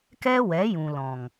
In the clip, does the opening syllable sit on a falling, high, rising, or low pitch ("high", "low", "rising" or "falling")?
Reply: high